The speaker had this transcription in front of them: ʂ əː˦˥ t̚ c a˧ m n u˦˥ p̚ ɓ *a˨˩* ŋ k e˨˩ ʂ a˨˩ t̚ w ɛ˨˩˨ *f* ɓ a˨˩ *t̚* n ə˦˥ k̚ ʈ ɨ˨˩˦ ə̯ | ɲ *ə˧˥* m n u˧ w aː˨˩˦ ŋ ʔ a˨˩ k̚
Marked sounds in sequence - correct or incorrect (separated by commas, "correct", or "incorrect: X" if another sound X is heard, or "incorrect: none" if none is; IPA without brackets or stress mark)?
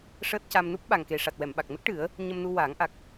correct, incorrect: m, incorrect: k̚, incorrect: ə˧